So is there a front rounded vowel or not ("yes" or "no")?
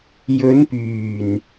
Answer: yes